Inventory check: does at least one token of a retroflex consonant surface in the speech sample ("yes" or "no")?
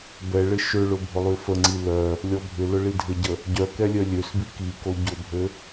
yes